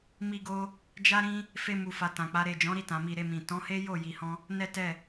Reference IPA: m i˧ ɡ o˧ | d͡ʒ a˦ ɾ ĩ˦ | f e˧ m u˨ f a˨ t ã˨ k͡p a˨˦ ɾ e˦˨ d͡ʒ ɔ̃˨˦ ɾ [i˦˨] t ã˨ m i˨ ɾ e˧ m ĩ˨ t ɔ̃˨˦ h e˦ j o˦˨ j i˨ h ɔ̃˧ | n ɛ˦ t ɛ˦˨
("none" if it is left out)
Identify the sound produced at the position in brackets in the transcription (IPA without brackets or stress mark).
i˦˨